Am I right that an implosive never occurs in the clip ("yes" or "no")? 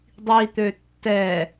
yes